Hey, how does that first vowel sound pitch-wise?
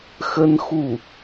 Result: high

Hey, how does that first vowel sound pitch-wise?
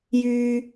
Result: high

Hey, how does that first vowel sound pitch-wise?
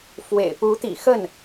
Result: low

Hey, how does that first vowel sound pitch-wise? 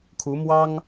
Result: rising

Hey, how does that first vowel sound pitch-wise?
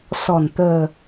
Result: low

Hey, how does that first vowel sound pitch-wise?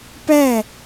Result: falling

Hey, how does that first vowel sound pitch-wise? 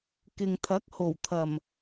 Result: low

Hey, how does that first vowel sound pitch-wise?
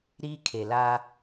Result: high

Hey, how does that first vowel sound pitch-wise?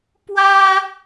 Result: high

